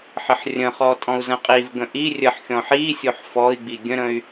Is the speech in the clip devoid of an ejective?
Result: no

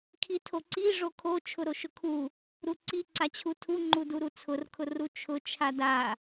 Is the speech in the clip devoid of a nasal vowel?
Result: yes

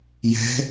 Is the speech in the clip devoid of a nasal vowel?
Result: yes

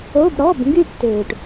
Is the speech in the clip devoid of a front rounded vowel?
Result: no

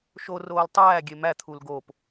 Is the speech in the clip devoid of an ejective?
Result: yes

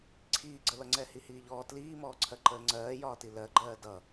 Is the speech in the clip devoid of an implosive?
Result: yes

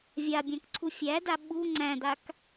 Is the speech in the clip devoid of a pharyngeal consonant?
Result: yes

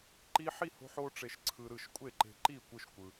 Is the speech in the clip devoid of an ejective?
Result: no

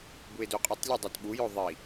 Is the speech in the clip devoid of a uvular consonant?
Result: no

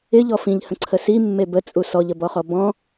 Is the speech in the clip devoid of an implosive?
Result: yes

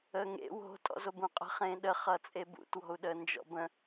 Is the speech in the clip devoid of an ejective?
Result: no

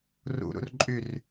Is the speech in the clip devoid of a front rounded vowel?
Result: no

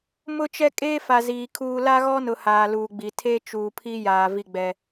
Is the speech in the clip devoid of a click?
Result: yes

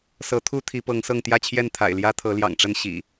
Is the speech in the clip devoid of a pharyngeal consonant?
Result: yes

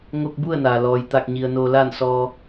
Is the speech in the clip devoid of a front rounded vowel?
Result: yes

